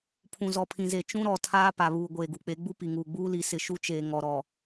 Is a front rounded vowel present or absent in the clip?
absent